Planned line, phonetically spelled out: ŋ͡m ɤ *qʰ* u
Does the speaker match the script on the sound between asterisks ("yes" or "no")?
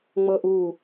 no